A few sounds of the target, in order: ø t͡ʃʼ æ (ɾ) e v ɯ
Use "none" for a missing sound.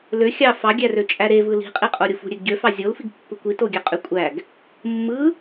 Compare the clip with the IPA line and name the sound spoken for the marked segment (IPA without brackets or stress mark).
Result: ɾ